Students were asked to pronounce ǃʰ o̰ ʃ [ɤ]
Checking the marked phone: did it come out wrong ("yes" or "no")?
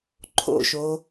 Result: yes